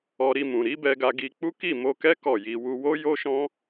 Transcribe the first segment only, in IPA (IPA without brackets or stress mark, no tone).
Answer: ɔ